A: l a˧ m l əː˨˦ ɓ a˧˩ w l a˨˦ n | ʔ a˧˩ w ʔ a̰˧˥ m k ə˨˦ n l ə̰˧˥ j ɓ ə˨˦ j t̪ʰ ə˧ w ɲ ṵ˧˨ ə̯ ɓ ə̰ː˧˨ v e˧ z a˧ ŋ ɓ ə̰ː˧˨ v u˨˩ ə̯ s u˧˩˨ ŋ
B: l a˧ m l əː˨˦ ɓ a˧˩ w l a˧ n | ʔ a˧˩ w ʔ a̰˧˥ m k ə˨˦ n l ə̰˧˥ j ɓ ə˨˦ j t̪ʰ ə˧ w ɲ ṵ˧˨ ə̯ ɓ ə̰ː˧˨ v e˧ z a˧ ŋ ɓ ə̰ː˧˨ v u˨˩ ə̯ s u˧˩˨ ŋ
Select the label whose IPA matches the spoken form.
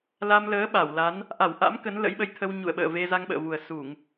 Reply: A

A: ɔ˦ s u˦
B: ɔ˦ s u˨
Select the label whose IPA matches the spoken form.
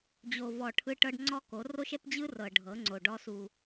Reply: B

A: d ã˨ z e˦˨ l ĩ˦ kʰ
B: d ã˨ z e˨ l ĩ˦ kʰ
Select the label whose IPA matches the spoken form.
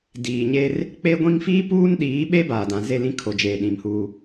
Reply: A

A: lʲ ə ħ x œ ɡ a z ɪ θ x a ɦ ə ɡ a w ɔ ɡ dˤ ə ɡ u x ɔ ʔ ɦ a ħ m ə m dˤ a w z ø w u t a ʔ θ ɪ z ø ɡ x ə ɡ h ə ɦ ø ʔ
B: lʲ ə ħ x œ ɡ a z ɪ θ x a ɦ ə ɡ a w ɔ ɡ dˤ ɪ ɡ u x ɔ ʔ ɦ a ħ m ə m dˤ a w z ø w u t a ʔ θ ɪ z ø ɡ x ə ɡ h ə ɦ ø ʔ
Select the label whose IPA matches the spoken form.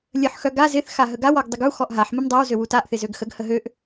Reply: A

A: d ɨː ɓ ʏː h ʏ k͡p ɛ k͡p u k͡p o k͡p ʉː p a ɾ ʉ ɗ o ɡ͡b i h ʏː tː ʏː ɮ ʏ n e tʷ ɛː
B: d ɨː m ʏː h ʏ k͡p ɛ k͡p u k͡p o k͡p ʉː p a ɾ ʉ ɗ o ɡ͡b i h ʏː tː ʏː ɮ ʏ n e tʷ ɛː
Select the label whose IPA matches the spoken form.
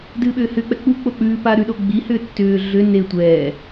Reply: A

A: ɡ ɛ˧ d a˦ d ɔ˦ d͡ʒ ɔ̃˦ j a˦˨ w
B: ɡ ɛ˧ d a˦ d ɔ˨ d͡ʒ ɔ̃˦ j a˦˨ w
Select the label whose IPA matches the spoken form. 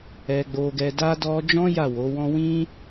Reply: A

